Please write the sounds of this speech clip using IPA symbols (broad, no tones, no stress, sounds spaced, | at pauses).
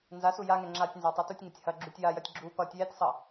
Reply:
n z a s u j a ŋ ɛ ŋ͡ǁ a tʲ n z a tˤ a t u tʲ ŋ ɐ tʲ h ɐ ɡ͡ǁ u tʲ j a j ɐ tʲ ɡ͡ǁ u p ʌ tʲ j ɛ tʲ sˤ ʌ